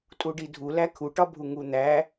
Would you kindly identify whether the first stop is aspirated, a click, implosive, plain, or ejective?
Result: ejective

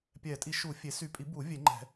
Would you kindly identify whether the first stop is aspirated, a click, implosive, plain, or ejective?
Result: plain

